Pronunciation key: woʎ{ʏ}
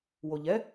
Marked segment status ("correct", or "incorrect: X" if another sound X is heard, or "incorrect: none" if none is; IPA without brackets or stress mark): incorrect: ɛ